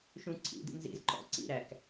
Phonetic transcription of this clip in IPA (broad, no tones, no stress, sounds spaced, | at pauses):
ʃ ũ ǀʰ ḭ d ḭ n z ḭ z ǃ ɔ̰ ǀ ḭ ɾ æ k